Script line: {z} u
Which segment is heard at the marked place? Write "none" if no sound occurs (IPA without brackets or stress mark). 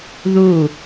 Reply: ð